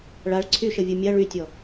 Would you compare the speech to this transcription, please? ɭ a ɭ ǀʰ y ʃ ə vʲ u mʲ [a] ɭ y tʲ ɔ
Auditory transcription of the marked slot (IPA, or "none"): a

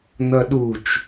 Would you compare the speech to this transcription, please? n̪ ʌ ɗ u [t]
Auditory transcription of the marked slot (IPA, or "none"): t͡ʃ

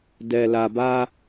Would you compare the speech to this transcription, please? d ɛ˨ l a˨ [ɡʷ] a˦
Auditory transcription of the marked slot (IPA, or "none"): b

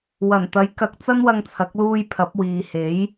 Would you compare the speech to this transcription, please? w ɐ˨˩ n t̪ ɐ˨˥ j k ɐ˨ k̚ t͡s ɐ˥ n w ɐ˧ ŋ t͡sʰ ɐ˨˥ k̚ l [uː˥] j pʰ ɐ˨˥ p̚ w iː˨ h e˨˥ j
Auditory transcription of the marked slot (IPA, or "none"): uː˧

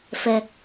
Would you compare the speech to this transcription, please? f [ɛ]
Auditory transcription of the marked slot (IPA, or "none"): ɛ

